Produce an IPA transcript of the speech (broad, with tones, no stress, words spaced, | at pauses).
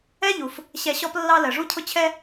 ɛ˥ʎu˩f | ɕɛ˧ɕɔ˥plːɑ˥ lɜ˩ʐu˥cʰʊ˥ t͡ɕʰɛ˥